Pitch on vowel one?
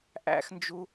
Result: high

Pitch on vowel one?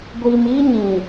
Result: low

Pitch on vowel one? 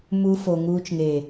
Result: high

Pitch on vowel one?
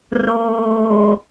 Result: low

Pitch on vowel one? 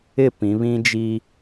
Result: falling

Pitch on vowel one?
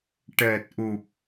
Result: low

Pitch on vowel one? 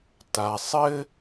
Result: low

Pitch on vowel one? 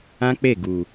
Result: high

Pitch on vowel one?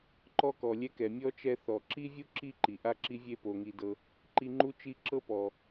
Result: high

